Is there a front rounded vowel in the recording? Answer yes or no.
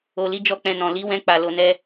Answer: no